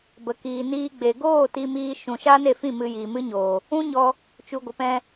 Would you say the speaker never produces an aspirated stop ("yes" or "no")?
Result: yes